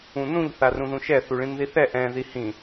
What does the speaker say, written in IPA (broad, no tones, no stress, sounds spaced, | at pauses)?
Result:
ũ n ũ ʎ θ a r ũ ð ũ ʃ ɛ θ u ɭ ĩ n ð i θ ɛ ʔ ɛ̃ ð i h ĩ